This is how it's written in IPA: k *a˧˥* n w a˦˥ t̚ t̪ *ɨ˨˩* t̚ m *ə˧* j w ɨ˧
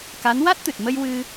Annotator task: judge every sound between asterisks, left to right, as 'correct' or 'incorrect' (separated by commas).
correct, correct, correct